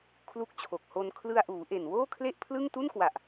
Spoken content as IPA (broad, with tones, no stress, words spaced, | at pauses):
kʰlu˦˥k̚t͡ɕʰo˨˩k̚ho˧n kʰlɯ˧a̯ʔuː˩˦ʔe˨˩n woː˥˩kʰle˥˩ʔpʰlɯ˥˩ŋ tu˥˩nkwa˨˩ʔ